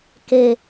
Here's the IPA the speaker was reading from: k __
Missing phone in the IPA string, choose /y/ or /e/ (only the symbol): e